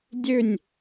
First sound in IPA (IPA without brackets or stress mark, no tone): dʲ